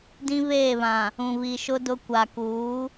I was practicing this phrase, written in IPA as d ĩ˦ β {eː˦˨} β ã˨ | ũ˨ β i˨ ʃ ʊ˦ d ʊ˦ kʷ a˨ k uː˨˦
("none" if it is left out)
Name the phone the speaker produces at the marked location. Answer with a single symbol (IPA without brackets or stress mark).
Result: eː˦˨